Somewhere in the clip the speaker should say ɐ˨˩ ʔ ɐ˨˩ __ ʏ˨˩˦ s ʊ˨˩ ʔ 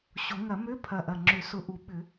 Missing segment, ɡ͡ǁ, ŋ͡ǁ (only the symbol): ŋ͡ǁ